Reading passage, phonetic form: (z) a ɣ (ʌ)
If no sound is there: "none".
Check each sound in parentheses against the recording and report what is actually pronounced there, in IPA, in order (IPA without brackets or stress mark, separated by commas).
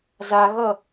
z, ʌ